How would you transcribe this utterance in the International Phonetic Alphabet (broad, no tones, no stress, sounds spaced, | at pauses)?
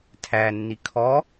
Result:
tʰ æ nː i kʰ ɔ